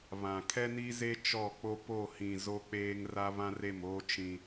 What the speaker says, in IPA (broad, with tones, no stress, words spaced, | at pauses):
βã˨ kʰɛ˦ni˦ze˦ t͡ʃɔ˦˨k͡po˦ po˦˨hĩ˨ zo˦k͡peː˦ŋ ra˦ βã˦re˦˨moː˦ t͡ʃĩ˦